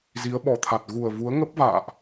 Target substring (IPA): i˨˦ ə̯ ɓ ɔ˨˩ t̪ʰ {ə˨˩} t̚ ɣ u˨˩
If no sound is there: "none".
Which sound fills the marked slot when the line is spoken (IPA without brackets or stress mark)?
a˨˩